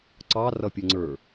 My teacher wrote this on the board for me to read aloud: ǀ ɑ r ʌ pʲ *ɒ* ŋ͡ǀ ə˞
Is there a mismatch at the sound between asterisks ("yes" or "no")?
yes